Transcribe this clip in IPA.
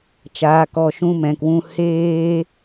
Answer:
t͡ʃ aː˨ k ɔ˨ ʃ ũ˨˦ m ɛ̃˨ k w ũ˧ h eː˧

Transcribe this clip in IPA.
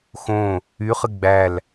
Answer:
x õ | y χ ɨ ɡ͡b æ l

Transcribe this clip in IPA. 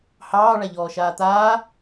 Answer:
h ɑː ɭ a ʎ ɔː ʃ aː t̪ aː

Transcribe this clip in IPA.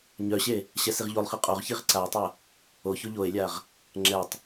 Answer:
ɲ œ ɕ e | ɕ ɛ s i ʁ ʎ o lˠ χ i qʼ o ʁ ç i ʁ ǀ a e̯ tˤ œ | o ç o ʎ o e̯ lʲ a ʁ | ŋ͡ǁ ɛ tˤ

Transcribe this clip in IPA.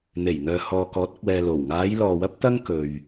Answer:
n̪ e˨˩ j ŋ œː˨ h ɔː˨ k ɔː˨˥ t̚ ɐ˨ k̚ w ɛː˨ l o˨˩ w ŋ aː˨˧ j l ɔː˨ w ɐ˥ p̚ t̪ ɐ˥ ŋ k ɵ˨ ɥ

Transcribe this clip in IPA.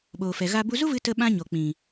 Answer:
ɓ oː˨ f ɛ˨ ɣ a˧ b u˧ z u˦ v ɨ˧ t ə˧ ɓ ã˦ ɲ o˨ k͡p ĩ˨

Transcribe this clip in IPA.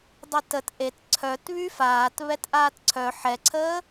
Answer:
dˤ i t ə t ʔ e t ǀʰ œ t β y f aː t β ɛ t ʔ aː t ǀʰ œ ħ ɛ ǀʰ əː

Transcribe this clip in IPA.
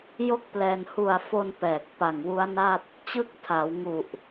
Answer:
j o˥˩ k̚ p l ɛː˧ n h u˨˩ a̯ f o˧ n p ɛː˨˩ k̚ p a˨˩ ŋ w u˦˥ a̯ n a˥˩ t̚ | t͡ɕ ɯ˥˩ k̚ tʰ a˩˦ w ŋ u˨˩ ʔ

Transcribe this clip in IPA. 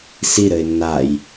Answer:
s i ɾ ɘ ɪ̯ nː a j

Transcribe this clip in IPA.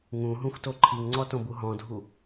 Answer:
ŋ ũ ɦ ũ xʷ t o ǃʰ i ŋ ŋ͡ǀ ɔ t õ b u ɦ ɔ̃ dʱ u

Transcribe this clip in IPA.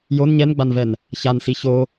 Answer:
j o n ɲ ɛ n ɡ͡b a n v ɛ n | ç a n s i ç o

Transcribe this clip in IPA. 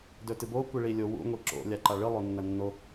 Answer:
d ɵ t ɨ b o kʷ i ɭ i lʲ o w ṵ ŋʷ i ǁ o̰ lʲ a ǃ a ɭ ɨ lˠ o nː ɐ nː o

